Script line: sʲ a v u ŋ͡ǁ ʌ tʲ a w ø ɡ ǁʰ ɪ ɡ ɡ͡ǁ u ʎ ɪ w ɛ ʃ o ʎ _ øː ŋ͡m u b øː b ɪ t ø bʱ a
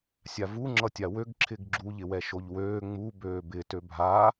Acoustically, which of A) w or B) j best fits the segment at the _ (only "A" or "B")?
A